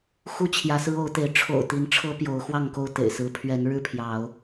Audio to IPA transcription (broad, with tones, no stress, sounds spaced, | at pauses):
x u˥˨ t͡ɕʰ j ä˨˦ s ɹ̩˦ o˨˦ ʊ̯ t̪ e˨˦ ɪ̯ ʈ͡ʂʰ o̰˨˩ ʊ̯ t̪ i˨˦ n ʈ͡ʂʰ ɤ˦ p j o˨˦ ʊ̯ x w ɑ˥˨ ŋ k o˥˨ ʊ̯ t̪ ḛ˨˩ ɪ̯ s ɹ̩˨˦ pʰ ɥ ɛ˨˦ n ɻ ɻ̩˥˨ pʰ j ɑ˨˦ ʊ̯